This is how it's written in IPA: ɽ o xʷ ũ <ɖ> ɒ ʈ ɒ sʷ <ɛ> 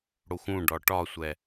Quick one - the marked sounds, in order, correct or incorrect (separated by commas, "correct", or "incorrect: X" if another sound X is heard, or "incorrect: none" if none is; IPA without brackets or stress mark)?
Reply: correct, correct